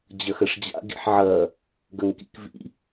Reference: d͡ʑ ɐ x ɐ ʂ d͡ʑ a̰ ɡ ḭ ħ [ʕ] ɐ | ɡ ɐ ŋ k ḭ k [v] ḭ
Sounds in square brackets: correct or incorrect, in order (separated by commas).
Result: correct, correct